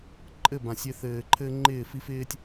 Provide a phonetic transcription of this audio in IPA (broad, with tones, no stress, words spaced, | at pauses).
ǃʼɘ˦˨bã˨sʲɪ˧θɘː˨ ǃʰɘ˦ŋ͡ǃɪː˦˨fi˦f ɪː˦tʲ